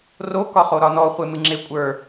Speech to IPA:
r o k ɒ χ o ɾ ɒ n ɔ χʷ e m ɨ ŋ͡ǁ e kʷʼ ə˞

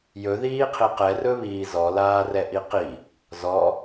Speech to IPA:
j ɵ ð iː qʰ i q ɛ r ɵ β iː z ɔ l aː r ɛ ʔ i q i | z ɔ

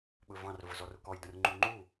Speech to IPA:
ɓ ɵ v ɑ̃ r v ʊ z ɔ r ʊ k ɔ j d ə̃ r ŋ͡ǃ u ŋ͡ǃ u

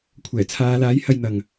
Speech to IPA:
kʷʰ ɛː˨˩ t͡sʰ aː˨˧ l aː˨˥ j h ɐ˧ j n̪ ɐ˨ ŋ

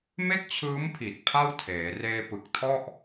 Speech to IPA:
m e˥˩ k̚ t͡ɕʰ ɯː˦˥ m pʰ i˨˩ t̚ pʰ a˥˩ w tʰ eː˩˦ r eː˧ p ɯ˨˩ k̚ tʰ ɔ˥˩ ʔ

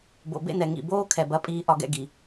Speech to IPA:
b o̰˨ b ḛ˧ n ɛ˨ ŋ ḭ˨ b oː˦ kʰ ɛ˨ b ɐ˧ pʼ iː˧ ʔ ɒ˧ ɡ ɛ̰˧ ɡ i˨

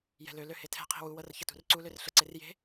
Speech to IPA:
j ɛ̤ l ø l ø h e tʰ ɛ̤ qʰ i̤ w u w ɤ r ç ə t ṳ r ǀ u l ø r ɬ ə ǀ e r j e̤

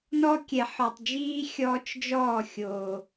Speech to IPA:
n ɔ˦ kʲ ɛ˨ ħ ɔ˨ tˤ d͡ʒ iː˦ xʲ ɔː˦ t͡ʃ d͡ʒ ɔː˦˨ xʲ o˨

